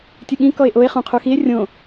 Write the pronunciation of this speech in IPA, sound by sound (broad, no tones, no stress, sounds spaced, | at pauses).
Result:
tʲ ɨ ɠ ĩ k ɔ e̯ ʔ o e̯ χ ũ qʰ u x i e̯ rʲ õ